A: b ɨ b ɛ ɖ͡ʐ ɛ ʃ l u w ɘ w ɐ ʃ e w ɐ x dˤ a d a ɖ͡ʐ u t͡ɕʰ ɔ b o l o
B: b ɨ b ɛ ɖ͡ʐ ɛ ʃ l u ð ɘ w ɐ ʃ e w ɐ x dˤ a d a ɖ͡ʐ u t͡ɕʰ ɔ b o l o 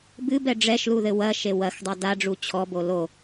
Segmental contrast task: B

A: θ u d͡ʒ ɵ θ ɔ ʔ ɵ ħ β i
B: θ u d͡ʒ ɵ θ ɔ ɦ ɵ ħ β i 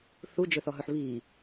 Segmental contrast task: B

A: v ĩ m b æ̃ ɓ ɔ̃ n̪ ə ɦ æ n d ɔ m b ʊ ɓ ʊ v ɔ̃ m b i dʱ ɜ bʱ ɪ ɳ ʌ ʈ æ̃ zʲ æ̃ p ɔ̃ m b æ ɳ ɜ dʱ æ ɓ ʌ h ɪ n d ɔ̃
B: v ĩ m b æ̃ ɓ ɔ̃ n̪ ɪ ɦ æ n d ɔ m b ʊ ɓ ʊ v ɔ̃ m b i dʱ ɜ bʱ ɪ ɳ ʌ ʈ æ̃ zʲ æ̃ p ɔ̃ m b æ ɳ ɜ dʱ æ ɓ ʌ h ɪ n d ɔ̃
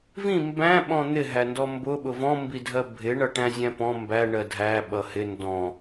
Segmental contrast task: B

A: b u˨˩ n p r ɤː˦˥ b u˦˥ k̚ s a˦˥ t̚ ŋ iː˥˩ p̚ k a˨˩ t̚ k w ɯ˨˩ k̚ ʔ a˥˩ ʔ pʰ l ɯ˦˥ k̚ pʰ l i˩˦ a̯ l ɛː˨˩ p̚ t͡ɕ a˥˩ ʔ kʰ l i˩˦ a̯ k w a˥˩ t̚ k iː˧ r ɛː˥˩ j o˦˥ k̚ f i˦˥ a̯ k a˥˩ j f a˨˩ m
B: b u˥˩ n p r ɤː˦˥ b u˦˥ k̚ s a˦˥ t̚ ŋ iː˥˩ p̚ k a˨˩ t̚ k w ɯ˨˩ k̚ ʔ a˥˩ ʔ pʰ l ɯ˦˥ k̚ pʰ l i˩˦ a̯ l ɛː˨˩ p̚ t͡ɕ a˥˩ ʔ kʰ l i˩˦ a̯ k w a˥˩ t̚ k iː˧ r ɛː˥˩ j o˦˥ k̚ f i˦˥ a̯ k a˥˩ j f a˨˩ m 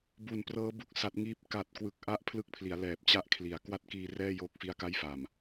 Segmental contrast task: A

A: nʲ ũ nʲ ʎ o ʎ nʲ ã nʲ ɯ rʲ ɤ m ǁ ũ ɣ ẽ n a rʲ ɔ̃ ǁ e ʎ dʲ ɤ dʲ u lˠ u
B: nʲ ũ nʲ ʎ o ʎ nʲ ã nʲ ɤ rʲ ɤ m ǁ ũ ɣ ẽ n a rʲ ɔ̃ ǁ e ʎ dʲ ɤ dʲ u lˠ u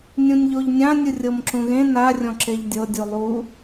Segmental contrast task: A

